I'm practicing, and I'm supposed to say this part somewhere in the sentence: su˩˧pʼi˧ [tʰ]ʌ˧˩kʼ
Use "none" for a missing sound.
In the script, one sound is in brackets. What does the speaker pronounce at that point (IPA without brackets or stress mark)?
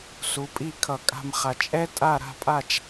kʰ